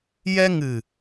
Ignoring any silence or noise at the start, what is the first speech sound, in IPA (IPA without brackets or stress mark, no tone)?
j